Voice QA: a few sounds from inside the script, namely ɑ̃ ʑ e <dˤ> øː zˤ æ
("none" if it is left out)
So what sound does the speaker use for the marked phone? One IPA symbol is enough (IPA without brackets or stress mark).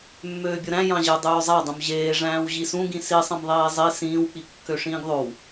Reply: dˤ